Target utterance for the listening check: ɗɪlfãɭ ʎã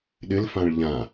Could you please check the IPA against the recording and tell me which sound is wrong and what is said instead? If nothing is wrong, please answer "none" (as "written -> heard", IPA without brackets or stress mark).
none